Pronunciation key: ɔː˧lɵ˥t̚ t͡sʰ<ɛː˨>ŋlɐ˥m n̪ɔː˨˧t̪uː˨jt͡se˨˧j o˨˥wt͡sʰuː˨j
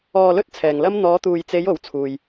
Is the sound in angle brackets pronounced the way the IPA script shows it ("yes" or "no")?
yes